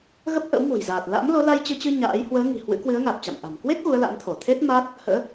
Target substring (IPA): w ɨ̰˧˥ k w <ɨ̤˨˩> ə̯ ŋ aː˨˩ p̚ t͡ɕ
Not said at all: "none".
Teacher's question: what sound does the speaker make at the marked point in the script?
ɨ˨˦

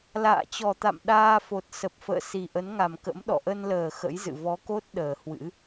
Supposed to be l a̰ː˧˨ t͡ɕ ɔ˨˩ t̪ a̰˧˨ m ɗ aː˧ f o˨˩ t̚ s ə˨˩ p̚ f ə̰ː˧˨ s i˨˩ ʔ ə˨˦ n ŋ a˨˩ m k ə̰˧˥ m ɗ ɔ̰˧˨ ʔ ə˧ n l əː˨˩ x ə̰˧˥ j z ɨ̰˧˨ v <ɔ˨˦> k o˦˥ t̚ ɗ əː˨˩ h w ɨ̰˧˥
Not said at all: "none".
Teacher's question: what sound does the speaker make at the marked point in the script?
ɔ˨˦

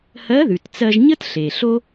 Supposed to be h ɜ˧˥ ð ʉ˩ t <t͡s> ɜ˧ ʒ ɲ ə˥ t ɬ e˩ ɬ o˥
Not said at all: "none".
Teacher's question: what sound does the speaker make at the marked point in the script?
t͡s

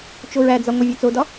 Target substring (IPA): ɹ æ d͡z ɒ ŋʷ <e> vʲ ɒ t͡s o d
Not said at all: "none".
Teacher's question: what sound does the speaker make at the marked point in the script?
e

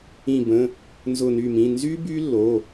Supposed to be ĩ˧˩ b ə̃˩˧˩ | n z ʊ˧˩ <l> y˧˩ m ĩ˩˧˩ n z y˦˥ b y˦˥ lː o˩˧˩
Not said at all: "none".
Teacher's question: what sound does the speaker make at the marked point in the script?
n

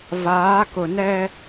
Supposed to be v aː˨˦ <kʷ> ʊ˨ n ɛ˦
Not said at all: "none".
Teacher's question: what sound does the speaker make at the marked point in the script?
k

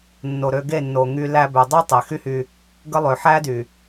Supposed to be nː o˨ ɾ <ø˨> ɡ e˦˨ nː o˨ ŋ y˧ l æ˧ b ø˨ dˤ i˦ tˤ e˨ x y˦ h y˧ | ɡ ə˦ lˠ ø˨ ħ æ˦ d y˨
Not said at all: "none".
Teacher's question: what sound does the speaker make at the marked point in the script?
ø˧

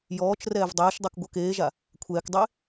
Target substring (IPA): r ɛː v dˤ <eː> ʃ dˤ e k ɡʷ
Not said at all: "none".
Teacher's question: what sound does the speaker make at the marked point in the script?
ɛː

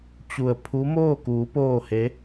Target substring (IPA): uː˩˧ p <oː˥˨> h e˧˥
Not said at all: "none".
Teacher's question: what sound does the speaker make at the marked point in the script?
oː˥˨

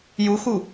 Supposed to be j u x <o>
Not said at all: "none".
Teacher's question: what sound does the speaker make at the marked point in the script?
u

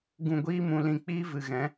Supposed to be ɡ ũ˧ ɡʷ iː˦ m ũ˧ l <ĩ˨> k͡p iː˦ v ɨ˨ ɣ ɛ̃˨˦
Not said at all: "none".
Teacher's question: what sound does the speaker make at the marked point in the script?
ĩ˧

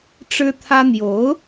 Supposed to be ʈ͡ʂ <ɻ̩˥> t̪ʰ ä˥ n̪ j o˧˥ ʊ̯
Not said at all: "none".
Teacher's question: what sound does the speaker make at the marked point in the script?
ɻ̩˥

